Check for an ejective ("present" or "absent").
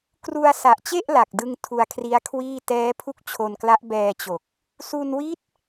absent